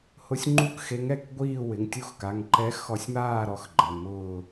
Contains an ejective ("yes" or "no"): no